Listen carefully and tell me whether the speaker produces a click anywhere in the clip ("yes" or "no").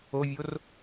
no